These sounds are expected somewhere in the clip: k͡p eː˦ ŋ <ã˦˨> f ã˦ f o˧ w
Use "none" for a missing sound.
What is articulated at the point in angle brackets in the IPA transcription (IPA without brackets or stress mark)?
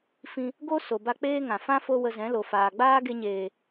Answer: ã˨